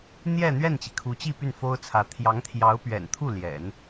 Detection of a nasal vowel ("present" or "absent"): absent